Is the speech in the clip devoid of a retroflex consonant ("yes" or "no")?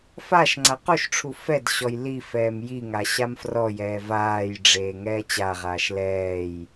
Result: no